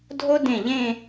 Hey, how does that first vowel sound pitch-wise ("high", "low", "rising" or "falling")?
high